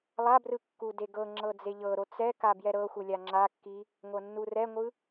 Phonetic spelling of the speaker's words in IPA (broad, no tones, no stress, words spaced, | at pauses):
lˠabrɯ kːudeɡɤŋ͡ǁɤ d͡zeʎɤɾo t͡sɛ kabjɛɾɤxʷɯ lʲaŋ͡ǁakːi | ŋʷɤnːurɛŋʷɯ